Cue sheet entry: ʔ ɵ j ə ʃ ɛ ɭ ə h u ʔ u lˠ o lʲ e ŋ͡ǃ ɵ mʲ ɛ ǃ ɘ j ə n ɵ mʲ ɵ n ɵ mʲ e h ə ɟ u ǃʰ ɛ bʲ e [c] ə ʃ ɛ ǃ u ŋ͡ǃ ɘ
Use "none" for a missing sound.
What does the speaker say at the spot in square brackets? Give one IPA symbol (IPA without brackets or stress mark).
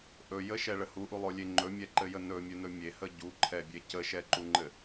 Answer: c